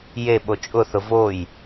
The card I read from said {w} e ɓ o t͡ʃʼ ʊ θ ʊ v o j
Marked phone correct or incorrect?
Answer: incorrect